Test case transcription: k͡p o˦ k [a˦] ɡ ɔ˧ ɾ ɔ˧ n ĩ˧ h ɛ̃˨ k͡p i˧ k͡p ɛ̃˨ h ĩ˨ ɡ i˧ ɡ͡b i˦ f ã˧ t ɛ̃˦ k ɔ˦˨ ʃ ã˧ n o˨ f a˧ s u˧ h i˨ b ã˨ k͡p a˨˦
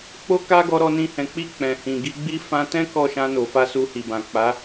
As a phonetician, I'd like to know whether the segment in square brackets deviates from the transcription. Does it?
no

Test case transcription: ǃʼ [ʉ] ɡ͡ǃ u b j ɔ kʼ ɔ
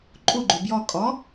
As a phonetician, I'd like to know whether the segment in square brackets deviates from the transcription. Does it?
yes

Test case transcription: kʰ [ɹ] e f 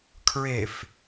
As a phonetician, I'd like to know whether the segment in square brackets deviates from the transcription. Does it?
no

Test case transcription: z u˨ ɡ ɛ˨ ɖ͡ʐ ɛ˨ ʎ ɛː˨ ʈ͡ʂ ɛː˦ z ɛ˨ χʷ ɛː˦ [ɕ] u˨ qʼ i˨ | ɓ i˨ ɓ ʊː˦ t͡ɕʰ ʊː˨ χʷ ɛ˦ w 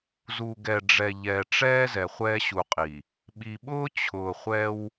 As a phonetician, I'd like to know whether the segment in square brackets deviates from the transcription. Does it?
no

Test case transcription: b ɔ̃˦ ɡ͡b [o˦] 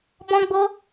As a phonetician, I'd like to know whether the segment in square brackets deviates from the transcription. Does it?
no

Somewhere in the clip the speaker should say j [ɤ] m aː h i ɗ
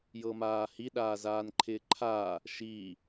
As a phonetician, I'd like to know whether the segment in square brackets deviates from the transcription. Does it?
no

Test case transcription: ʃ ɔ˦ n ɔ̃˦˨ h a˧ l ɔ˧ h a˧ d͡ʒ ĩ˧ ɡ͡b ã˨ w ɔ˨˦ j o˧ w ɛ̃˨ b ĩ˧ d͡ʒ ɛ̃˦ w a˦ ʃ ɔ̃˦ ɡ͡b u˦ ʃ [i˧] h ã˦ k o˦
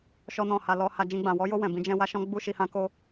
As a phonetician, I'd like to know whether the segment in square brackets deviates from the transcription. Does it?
no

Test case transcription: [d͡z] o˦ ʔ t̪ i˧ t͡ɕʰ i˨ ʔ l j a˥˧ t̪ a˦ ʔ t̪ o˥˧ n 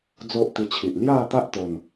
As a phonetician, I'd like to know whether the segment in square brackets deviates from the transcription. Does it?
no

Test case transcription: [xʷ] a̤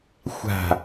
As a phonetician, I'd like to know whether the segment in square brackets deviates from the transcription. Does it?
no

